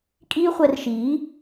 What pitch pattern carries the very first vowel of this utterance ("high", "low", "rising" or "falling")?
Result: high